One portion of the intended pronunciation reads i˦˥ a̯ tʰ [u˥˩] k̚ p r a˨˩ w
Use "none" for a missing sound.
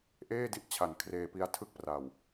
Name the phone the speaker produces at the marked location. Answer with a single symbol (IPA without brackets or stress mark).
ɯ˥˩